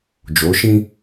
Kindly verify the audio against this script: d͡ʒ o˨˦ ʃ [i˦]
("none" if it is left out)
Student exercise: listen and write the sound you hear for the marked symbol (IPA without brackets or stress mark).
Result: ĩ˦